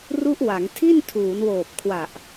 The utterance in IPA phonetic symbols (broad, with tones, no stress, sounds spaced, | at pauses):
r u˦˥ ʔ w a˩˦ ŋ tʰ i˥˩ n tʰ uː˩˦ n w oː˨˩ p̚ kʰ w a˨˩ ʔ